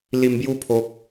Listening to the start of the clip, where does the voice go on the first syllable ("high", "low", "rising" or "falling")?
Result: low